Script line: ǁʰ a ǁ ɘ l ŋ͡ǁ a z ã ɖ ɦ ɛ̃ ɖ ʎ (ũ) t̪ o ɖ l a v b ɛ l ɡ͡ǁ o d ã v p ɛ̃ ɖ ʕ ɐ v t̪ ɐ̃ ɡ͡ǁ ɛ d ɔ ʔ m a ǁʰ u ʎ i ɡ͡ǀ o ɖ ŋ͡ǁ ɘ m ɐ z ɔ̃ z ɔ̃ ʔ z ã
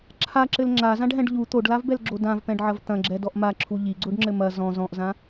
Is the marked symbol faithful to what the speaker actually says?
no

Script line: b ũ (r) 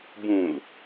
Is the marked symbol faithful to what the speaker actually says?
no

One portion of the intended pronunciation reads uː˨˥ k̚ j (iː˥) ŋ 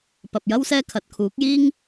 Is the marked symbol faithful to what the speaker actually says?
yes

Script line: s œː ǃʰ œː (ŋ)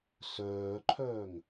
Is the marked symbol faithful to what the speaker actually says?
yes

